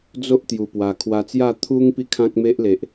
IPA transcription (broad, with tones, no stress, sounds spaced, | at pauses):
d͡z o˦ ʔ t̪ j u˨˩ p w a˨˩ kʰ w a˧ t͡s j a˥˧ t̪ʰ u˦ ŋ p i˥˧ kʰ ã˦ k̚ m e˦ ʔ l e˨ ʔ